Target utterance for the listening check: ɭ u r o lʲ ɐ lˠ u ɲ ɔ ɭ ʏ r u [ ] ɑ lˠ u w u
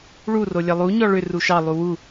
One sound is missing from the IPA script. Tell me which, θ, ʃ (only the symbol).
ʃ